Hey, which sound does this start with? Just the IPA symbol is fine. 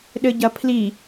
ɗ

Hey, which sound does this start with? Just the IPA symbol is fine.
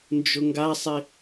n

